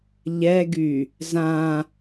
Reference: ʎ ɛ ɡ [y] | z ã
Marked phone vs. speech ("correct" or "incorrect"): correct